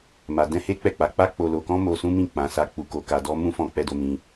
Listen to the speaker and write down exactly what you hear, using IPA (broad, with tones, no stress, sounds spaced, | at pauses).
m a˧ d ɛ̃˦ h e˦ k͡p ɛ˦˨ k͡p a˨˦ k͡p a˦ k͡p o˧ l o˧ k ɔ̃˦ m o˧ s ũ˦ m ĩ˦˨ k͡p ã˨˦ s a˧ k͡p u˧ k o˧ k a˧ d ɔ˦ m ũ˦ f ɔ̃˧ k͡p ɛ˧ d o˧ m ĩ˧